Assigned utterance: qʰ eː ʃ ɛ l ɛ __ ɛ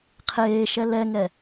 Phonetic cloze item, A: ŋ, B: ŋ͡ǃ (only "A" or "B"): A